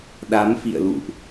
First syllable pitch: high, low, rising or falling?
rising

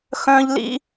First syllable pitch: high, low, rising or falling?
high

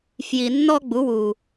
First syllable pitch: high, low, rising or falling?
low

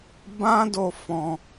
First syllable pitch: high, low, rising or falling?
high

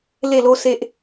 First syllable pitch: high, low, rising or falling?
falling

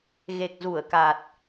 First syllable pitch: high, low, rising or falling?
low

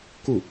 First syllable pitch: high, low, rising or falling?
falling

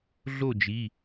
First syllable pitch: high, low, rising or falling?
falling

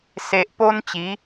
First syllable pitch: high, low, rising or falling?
low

